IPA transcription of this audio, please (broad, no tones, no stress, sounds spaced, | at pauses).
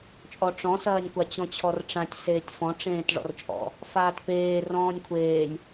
t͡ʃʼ ɔ ʈ͡ʂ ɔ̃ s ɐː nʲ kʷ a t͡ɕ ɔ̃ t͡ɕʰ ɔ r ʈ͡ʂ ã tʲ s eː tʲ f ɔ̃ ʈ͡ʂ ẽː t ʐ ɔ̰ r t͡ʃʼ ɔ̰ | f aː t p eː r ɔ̃ː nʲ kʷʰ eː nʲ